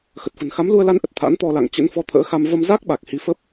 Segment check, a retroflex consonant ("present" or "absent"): absent